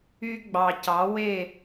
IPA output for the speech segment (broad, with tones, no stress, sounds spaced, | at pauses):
y˧ ɡ͡b ɑ˨ c ɑ˨˦ w e˦˨